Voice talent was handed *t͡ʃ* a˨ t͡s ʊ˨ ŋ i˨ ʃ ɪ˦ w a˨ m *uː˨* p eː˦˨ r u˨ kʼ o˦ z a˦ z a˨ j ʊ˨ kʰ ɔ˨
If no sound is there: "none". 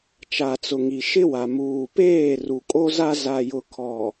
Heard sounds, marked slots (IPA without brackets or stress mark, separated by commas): t͡ʃ, uː˨